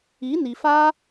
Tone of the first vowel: rising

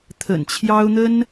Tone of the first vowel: low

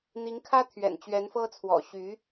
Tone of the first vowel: rising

